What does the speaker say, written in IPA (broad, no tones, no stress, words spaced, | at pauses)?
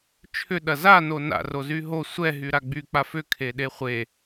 t͡ʃʰʏ ɗɐza nona̰ rozyɦo sʷɛ ɦyɾaɡ͡by k͡pafʏ kʰeɗeχʷe